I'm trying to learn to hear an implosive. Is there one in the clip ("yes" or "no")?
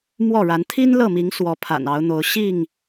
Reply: no